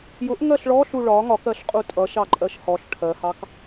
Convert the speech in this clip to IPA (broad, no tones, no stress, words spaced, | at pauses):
jʊʔ ŋɜɬɭɔɬu ɭɒ ŋɒkɜɬqʼu tʼʌʃɑ ǃʼɜʃhɔɬ ʈʰɜhɑk